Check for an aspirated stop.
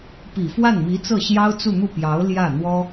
absent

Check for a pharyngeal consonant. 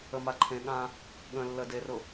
absent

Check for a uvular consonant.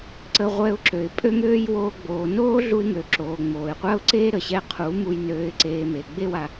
present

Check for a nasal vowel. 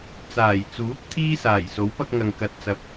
absent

